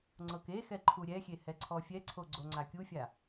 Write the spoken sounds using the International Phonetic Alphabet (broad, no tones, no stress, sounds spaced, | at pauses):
ŋ͡ǀ ɤ k e x ɛ ǃʰ u ɾʲ ɛ xʲ e h ɛ ǀʰ ɔ fʲ ɛ ǀʰ o ɡ͡ǀ o ŋ͡ǀ a kʲ u fʲ a